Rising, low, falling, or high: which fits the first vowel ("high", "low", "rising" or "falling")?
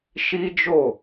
high